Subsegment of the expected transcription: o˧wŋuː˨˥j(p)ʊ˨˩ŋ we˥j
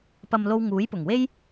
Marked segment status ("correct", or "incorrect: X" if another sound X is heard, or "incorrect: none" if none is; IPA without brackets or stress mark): correct